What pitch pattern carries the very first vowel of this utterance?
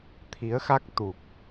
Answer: rising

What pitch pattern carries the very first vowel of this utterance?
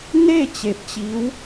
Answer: falling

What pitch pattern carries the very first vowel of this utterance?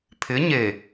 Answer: rising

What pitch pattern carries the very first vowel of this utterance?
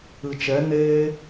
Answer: low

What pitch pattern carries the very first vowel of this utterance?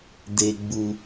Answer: high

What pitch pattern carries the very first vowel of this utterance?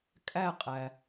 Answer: falling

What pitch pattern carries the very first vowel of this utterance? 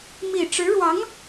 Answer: low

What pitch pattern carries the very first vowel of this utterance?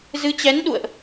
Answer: rising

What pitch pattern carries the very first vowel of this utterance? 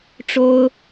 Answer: high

